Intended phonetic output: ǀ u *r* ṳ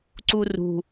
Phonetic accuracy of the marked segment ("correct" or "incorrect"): correct